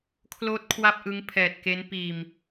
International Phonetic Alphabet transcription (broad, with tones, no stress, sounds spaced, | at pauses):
kʰ l oː˦˥ t̚ kʰ w a˥˩ p̚ ʔ ɯ˦˥ ŋ pʰ ɛː˨˩ t̚ k e˦˥ n p iː˨˩ m